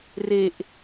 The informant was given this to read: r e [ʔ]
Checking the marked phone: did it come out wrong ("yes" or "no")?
no